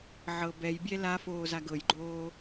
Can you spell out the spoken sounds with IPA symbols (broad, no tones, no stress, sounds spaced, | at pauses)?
ʕ ɤ b ɛ j bʲ ɛ l a f oː z a ɡ ɤ j ɡ͡ǃ oː